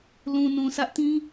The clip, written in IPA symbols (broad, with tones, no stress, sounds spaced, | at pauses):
l ũ˨ n ũ˨ sʰ ä˦ ʔ t ĩ˦